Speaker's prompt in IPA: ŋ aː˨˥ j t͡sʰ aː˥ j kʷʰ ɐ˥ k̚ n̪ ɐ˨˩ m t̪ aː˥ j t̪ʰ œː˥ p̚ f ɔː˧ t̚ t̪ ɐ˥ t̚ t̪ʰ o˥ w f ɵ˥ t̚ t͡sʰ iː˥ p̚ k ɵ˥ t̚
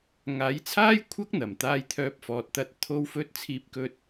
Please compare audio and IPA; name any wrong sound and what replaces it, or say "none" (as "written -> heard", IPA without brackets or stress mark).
none